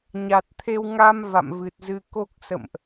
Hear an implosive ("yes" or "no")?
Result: no